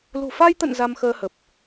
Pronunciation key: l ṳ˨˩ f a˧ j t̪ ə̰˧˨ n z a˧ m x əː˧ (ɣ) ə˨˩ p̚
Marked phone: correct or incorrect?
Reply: incorrect